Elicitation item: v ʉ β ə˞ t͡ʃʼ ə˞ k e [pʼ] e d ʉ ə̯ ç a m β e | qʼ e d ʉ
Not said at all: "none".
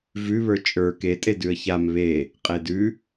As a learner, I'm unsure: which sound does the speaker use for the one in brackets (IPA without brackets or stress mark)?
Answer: tʼ